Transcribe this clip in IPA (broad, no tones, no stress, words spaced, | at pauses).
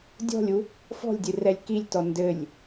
dʲɔ̤lʲu | fɔ̤lʲdʲɨrɛlʲ kilʲtɔ ndɘlʲ